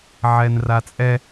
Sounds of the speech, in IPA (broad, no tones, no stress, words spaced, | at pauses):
ʕɛnrat͡sʼɛ